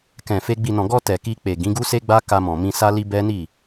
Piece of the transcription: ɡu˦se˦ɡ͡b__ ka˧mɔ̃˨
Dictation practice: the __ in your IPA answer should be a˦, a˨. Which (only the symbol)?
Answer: a˦